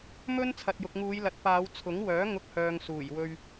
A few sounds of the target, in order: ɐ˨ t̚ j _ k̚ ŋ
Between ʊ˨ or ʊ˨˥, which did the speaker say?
ʊ˨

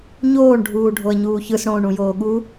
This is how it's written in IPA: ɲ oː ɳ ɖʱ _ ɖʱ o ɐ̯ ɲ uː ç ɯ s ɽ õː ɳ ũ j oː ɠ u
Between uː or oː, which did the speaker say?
uː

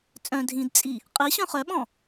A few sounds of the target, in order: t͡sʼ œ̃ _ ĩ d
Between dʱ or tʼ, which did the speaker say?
dʱ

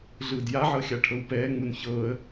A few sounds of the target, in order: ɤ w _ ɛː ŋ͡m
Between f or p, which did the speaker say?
p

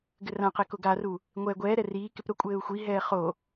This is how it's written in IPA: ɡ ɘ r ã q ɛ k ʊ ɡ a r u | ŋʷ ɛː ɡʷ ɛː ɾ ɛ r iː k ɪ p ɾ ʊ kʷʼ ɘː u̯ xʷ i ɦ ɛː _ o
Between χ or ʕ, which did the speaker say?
χ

